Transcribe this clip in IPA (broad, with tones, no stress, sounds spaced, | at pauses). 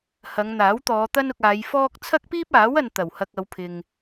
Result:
h ɐ˨˧ ŋ n̪ aː˨˥ w t̪ ɔː˨˧ t̪ ɐ˥ n ʊ˧ k̚ aː˨˧ j f ɔː˥ k̚ t͡sʰ ɐ˥ k̚ p iː˥ p̚ aː˨˥ w ɐ˨ n t̪ ɐ˨˩ w h ɐ˧ k̚ ɐ˨˧ w pʰ ɪ˨ ŋ